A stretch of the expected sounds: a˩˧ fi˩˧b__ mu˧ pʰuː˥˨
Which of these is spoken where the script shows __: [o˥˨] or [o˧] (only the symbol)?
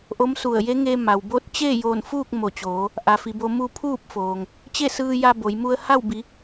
o˧